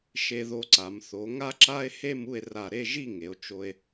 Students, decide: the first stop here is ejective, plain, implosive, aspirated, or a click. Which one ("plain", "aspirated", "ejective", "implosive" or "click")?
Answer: click